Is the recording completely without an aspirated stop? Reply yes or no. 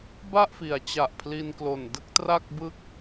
no